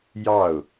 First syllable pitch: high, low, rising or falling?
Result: falling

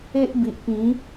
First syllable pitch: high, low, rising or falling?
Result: high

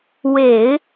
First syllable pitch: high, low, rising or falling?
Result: low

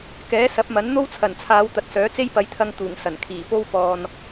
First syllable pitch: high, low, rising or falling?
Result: rising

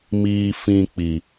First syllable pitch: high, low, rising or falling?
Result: low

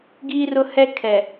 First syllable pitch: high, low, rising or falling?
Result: high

